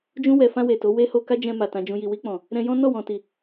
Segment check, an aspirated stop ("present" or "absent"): absent